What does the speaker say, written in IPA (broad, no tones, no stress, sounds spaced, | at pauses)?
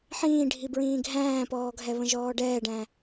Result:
ħ ĩː ɖʱ i b ɹ ĩː ɡʱ æ̃ː p ɔː ɡʱ ɛ β ə̃ ʒ ɔː ɖ ɛː ɖ æ̃